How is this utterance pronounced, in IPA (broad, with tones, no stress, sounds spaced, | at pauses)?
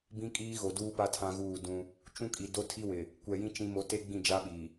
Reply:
b ĩ˦ kʼ iː˦ ɣ o˨ d uː˦ p a˦ tʰ ã˦ ɣ uː˦˨ d ũ˦ | t͡ʃ ũ˦ kʼ i˨ d o˦ tʰ i˦ w ɪ˨ | kʷ ɛ˨ j ĩ˦ t͡ʃ ĩ˦ m o˦ t e˦ ɡ͡b ĩ˦˨ d͡ʒ a˦ ɓ i˨